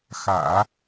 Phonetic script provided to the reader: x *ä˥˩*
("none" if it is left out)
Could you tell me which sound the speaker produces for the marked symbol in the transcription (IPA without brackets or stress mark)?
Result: ä̰˨˩˦